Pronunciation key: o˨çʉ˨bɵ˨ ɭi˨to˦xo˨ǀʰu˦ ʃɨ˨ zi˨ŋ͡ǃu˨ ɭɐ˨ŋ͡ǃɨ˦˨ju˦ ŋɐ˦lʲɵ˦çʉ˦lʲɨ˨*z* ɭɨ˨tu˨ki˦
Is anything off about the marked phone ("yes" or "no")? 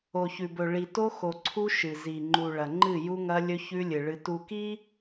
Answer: yes